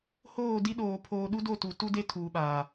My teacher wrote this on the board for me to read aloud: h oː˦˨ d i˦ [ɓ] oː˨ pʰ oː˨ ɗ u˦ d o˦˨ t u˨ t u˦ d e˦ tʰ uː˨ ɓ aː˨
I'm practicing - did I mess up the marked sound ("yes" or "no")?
yes